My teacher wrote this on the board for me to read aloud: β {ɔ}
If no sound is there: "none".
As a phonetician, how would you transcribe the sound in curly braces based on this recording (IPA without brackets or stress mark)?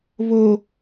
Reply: o